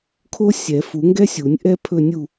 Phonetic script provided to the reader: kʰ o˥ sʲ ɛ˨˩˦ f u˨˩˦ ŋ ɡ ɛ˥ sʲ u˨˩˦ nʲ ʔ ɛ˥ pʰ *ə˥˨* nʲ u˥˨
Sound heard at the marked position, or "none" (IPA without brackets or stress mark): ɵ˥˨